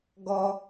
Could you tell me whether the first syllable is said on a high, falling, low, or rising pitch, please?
high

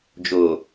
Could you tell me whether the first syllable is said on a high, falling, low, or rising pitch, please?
low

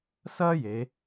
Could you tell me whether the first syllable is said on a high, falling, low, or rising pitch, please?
high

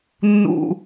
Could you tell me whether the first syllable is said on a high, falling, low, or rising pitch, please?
low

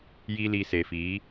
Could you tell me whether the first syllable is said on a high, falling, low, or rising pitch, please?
high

